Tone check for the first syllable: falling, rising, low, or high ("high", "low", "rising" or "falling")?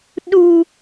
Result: high